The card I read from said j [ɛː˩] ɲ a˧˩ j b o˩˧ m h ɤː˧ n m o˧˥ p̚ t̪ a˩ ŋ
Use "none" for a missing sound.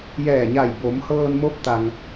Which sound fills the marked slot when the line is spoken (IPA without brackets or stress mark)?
ɛː˧˩